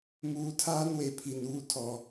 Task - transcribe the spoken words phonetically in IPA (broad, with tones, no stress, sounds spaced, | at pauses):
m uː˨ tʰ aː˦ n w e˨ pʰ i˨ n uː˦ tʰ ɔ˨